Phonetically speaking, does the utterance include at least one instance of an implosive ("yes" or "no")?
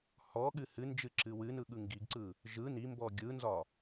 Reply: yes